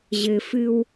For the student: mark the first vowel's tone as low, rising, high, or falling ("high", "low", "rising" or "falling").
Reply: low